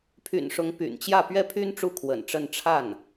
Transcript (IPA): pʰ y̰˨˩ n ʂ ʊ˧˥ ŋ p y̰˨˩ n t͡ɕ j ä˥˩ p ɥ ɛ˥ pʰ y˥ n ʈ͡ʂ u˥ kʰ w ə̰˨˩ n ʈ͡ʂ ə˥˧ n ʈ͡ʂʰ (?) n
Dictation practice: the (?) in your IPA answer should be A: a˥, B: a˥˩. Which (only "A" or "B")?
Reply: B